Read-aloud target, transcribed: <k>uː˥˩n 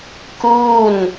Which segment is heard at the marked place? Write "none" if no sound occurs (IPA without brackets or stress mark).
k